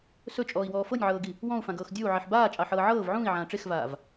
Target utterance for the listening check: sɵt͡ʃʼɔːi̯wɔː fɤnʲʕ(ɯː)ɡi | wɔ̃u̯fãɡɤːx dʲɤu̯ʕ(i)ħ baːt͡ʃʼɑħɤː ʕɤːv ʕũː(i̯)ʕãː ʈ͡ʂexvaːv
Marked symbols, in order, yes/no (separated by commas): no, yes, yes